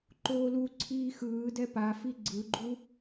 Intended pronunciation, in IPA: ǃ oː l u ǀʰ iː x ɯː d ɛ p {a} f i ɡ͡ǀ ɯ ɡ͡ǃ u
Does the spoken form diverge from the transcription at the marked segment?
no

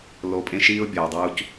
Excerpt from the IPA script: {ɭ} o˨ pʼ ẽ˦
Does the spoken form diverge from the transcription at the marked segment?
yes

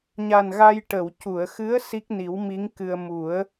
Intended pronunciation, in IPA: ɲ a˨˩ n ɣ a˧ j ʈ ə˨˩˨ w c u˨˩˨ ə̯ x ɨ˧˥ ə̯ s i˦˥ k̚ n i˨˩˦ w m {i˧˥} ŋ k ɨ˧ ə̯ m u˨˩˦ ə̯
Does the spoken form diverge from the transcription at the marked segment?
no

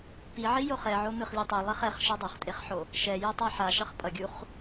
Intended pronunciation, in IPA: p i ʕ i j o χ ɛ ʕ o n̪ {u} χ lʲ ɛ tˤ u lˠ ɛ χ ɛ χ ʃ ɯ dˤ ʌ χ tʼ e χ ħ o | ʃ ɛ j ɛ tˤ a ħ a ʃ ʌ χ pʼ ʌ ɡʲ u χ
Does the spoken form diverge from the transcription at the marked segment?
yes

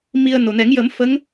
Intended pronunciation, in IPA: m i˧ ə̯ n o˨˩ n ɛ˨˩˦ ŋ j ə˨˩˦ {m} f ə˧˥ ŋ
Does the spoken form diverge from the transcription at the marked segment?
no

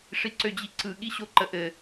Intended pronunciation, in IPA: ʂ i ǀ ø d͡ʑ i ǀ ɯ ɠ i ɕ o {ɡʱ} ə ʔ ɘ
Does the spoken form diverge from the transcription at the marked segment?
yes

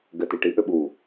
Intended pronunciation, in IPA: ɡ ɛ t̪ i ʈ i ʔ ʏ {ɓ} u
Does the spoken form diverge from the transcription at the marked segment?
no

